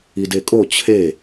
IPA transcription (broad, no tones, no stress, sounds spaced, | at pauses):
i d e kʼ o t͡ɕʰ e